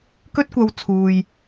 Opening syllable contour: high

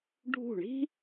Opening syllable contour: falling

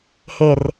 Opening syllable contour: low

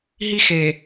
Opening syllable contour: high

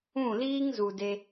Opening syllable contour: falling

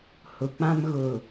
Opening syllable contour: low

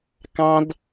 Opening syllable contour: high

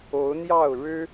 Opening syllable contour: rising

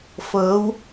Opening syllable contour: rising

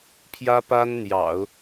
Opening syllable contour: high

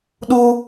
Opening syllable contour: high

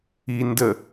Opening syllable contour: low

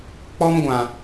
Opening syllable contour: high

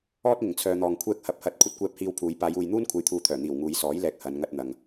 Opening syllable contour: high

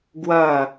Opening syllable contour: falling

